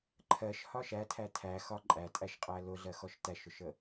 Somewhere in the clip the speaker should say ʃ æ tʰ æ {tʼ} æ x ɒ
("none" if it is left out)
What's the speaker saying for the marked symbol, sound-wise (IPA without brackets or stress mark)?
tʰ